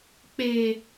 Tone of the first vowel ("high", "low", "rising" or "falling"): low